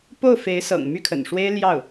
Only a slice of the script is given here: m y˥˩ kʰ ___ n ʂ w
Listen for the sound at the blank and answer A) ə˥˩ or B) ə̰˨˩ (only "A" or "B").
B